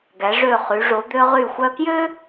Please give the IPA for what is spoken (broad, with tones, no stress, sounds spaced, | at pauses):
ɡ æ˩˧ ʐ ø˧˩ χ y˩˧ ʐ o˩˧ d̪ ø˧ ʁ y˧˩ xʷ œ˧ k j ø˥